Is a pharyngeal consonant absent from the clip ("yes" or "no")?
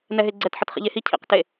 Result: no